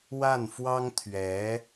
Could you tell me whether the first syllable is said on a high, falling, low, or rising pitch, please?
falling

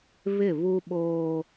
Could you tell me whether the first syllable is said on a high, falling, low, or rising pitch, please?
falling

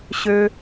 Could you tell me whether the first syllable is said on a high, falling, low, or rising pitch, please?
low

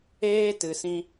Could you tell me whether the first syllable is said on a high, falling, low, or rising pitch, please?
high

